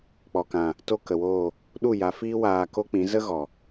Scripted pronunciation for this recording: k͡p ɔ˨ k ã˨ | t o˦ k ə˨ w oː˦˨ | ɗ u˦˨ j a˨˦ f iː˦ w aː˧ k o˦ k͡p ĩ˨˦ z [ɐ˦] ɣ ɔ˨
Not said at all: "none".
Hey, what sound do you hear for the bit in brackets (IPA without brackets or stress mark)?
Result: ə˦